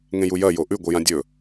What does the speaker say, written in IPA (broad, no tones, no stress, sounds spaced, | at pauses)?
ŋ ẽ j u j ɐ j o ʔ ʉ ɡʷ ɨ j ã dʲ ɵ